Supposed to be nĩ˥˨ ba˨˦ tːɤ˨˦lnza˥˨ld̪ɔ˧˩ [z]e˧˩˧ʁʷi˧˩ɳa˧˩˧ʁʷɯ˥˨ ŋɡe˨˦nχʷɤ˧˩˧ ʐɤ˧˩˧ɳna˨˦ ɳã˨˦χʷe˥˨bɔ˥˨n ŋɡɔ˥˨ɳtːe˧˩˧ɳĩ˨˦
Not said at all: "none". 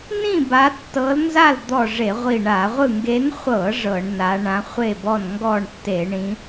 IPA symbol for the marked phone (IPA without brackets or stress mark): ʐ